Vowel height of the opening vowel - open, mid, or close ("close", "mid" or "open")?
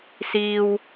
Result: close